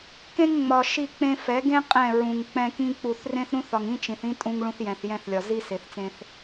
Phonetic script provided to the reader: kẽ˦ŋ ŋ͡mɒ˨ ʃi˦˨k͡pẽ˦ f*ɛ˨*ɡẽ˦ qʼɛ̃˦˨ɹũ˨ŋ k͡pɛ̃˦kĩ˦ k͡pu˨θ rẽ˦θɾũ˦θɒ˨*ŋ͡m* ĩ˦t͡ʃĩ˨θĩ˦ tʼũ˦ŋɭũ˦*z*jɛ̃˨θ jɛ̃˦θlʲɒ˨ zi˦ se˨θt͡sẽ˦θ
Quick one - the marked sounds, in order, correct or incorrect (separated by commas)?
incorrect, incorrect, incorrect